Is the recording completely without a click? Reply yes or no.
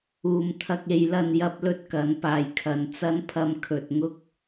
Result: yes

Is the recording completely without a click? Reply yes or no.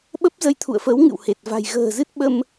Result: yes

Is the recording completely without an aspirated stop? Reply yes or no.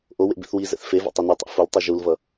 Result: yes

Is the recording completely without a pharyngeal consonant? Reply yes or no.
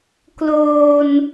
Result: yes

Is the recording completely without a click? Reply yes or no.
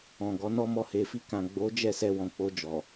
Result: yes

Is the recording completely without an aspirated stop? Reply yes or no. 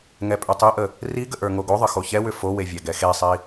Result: yes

